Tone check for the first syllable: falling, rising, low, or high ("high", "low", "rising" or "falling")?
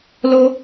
high